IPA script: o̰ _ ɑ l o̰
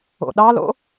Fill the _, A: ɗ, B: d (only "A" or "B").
A